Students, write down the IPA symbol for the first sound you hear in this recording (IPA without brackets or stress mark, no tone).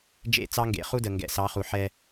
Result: d͡ʒ